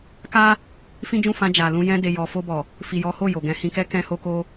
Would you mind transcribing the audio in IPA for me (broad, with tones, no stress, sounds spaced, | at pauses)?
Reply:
k a˦ | f ĩ˦ d͡ʒ ũ˦˨ f ã˧ d͡ʒ a˨ l ũ˧ j ɛ̃˧ d e˨ j ɔ˨ f o˧ b ɔ˨ | f i˨ j ɔ˨˦ h o˦˨ j o˨ ɡ ɛ̃˨˦ h ĩ˧ k ɛ˦ k ɛ̃˧ h o˧ k o˧